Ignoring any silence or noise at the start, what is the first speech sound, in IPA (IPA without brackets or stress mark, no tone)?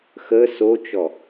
x